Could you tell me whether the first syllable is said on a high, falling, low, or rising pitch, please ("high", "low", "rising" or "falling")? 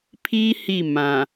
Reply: high